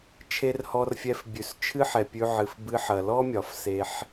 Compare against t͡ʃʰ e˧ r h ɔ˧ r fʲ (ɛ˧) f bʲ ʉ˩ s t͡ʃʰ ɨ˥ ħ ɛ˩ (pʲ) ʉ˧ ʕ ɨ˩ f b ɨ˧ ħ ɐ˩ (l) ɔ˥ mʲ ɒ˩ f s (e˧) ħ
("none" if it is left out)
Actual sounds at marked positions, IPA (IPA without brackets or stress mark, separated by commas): ɛ˧, pʲ, l, e˧